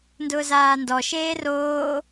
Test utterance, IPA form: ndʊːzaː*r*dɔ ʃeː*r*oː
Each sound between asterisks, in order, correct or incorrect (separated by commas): incorrect, correct